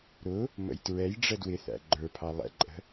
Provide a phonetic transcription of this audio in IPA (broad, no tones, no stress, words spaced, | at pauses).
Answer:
ɾʊ | mə̰jtɹɛjɖ͡ʐə dwɪθæ̰ ɡ͡ǃə˞pʰɑ lˠɛ̰ǃʼə̤